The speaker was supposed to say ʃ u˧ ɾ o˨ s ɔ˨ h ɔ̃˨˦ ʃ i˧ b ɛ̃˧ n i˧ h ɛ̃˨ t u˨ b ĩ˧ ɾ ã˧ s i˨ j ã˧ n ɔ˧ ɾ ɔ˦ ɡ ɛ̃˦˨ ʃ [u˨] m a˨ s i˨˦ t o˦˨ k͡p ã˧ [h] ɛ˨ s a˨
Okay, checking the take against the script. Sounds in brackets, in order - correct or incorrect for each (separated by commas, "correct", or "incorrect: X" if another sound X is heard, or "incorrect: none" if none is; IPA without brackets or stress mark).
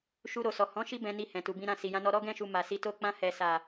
correct, correct